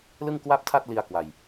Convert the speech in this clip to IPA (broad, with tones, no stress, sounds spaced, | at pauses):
l ɯ˥˩ ŋ k w a˥˩ p̚ tʰ a˥˩ t̚ l i˧ a̯ k w a˧ j